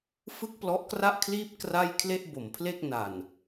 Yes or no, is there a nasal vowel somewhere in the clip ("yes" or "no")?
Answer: no